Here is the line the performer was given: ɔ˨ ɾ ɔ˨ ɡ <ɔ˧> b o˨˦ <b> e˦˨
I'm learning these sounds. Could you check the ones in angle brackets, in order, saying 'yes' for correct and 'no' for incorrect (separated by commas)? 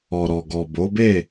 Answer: no, yes